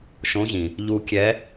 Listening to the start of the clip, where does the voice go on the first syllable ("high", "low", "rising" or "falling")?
rising